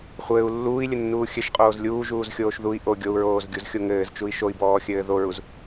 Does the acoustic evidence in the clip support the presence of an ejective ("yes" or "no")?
yes